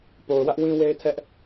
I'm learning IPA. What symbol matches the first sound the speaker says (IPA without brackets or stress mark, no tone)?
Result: p